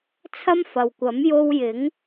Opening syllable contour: high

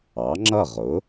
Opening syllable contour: rising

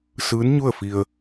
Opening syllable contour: rising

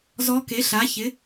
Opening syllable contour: rising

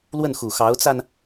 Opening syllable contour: falling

